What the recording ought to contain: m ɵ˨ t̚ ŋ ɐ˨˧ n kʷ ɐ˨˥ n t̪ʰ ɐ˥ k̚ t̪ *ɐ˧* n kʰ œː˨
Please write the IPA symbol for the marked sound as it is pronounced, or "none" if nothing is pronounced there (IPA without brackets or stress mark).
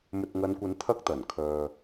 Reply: ɐ˨˩